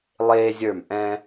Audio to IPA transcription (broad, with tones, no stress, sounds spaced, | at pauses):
lˠ eː˦ zʲ ə˞˦˨ m ʔ ɛ̃˦